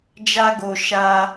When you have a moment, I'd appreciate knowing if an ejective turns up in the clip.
no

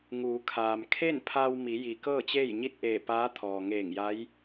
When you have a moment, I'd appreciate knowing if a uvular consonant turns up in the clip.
no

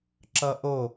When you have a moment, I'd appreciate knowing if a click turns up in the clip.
yes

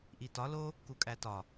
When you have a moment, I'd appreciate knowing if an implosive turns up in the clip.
no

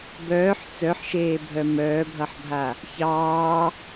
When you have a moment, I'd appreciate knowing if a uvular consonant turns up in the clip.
no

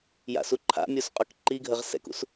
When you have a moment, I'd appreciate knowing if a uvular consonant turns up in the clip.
yes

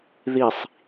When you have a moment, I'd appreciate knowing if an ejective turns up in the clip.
no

